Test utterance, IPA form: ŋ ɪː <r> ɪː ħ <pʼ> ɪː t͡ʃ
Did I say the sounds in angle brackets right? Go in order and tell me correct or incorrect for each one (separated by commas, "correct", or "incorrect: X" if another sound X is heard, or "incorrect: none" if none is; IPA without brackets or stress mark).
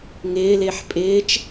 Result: incorrect: l, correct